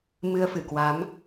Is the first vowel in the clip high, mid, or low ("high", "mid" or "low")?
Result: high